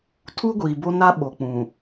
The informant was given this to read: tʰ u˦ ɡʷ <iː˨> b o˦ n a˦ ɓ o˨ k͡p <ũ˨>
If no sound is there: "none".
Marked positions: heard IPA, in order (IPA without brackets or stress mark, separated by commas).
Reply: iː˨, ũ˨